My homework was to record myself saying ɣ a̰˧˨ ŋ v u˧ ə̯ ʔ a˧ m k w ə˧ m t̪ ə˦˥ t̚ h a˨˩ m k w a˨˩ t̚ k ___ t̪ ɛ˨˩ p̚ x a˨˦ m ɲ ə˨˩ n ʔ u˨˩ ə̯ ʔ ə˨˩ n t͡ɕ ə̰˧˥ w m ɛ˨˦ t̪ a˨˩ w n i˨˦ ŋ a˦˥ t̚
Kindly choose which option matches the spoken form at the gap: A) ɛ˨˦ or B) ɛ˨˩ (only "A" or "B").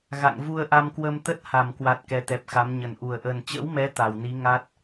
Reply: A